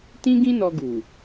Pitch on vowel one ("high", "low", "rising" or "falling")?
high